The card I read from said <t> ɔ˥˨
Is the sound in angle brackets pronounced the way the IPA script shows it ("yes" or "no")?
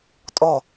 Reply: no